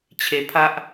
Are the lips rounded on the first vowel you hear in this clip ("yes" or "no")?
no